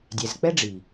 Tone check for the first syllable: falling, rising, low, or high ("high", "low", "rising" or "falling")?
low